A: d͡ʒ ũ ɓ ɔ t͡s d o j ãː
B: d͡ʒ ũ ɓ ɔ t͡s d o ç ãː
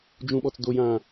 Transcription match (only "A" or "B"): A